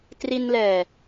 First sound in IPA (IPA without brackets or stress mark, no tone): t